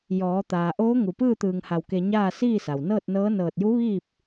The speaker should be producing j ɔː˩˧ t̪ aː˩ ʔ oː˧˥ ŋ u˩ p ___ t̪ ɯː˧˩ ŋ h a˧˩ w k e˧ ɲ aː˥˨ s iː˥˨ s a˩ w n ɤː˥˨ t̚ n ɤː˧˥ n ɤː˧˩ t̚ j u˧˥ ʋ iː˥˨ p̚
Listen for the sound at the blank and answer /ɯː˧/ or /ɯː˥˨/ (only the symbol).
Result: ɯː˥˨